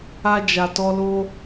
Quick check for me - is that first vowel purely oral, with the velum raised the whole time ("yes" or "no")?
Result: yes